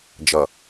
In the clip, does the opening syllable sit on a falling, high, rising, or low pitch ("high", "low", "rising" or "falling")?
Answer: low